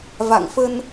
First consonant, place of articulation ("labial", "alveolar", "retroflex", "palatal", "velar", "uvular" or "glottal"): labial